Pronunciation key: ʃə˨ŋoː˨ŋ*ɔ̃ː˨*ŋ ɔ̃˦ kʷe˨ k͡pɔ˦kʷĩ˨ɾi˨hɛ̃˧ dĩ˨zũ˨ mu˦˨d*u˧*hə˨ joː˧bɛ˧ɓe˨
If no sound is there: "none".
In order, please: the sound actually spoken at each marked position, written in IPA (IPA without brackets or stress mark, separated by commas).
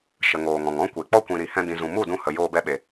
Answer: ɔ̃˨, ũ˧